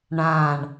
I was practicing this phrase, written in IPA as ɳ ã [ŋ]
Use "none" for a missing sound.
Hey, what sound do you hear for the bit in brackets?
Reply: ɳ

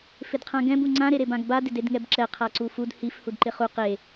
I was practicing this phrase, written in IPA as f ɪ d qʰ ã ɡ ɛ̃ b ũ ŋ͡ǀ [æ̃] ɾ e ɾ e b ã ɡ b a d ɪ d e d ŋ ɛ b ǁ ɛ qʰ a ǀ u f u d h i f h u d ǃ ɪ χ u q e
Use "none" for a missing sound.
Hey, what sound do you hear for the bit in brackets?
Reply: ã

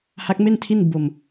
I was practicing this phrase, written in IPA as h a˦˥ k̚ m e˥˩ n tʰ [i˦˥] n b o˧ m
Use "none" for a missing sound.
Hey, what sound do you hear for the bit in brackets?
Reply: i˥˩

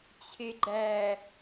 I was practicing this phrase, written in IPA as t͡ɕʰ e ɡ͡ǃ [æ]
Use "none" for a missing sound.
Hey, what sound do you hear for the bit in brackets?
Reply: æ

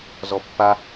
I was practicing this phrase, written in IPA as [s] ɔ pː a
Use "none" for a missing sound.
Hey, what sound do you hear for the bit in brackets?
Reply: z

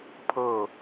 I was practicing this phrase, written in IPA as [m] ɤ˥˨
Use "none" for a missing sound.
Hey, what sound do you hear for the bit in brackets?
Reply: pʰ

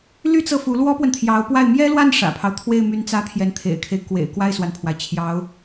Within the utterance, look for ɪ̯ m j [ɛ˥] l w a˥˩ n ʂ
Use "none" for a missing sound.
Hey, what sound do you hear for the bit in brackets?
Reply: ɛ˥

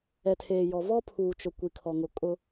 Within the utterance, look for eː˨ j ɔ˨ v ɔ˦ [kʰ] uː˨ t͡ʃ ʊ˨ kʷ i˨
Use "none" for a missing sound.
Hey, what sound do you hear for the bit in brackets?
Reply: pʰ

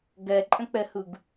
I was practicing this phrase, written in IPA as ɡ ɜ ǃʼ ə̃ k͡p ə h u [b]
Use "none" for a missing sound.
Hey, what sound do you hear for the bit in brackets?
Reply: ɡ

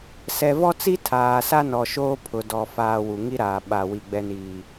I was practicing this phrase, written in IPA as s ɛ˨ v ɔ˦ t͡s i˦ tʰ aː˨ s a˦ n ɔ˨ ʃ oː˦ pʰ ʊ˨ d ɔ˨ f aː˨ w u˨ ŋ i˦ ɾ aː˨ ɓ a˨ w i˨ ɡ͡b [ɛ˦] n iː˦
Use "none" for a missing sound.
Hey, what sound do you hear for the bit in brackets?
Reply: ɛ˦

